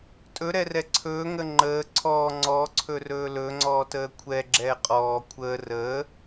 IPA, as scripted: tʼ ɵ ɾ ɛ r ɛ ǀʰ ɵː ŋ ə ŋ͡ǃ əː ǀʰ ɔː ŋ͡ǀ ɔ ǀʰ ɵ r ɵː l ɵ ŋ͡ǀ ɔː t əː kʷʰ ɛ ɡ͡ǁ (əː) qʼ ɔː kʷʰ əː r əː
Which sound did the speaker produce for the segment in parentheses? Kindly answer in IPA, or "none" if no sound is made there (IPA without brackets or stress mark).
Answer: ɛː